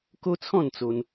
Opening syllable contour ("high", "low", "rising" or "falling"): high